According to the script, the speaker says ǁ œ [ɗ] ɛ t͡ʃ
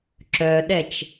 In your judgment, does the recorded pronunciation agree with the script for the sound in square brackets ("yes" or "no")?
yes